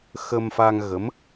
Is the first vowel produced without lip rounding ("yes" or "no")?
yes